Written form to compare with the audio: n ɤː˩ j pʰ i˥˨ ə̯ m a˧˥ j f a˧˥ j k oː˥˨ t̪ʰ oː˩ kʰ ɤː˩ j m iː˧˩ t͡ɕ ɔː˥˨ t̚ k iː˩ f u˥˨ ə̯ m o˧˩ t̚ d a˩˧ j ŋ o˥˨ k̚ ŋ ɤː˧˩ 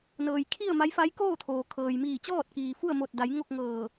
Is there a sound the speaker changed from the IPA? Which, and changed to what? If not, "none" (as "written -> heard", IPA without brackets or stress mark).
pʰ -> kʰ